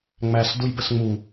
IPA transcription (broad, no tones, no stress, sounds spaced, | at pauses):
ŋ͡m æ s d u j b ə s ŋ͡m u